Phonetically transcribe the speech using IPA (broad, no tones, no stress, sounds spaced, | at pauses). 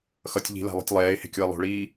x ʌ tʲ ʎ i̤ l a̤ lˠ e̤ tʲ lˠ ɛː e̯ h e̤ kʲ o e̯ lˠ o̤ ɭ iː